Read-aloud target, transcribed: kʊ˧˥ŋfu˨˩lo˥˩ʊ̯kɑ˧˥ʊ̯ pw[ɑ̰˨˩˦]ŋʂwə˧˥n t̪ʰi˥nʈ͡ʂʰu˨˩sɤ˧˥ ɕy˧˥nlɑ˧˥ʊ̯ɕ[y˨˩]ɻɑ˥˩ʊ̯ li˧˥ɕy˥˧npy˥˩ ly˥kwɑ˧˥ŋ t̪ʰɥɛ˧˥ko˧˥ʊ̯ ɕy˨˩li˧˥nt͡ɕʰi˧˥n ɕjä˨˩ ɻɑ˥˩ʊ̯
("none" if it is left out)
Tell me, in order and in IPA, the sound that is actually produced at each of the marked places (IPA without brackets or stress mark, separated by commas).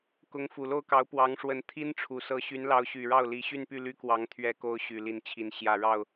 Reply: ɑ˧˥, y˨˩